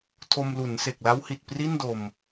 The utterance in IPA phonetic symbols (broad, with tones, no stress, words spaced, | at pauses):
tʰo˧mlu˩˦n se˨˩k̚la˦˥whi˨˩t̚ pri˥˩ndo˧m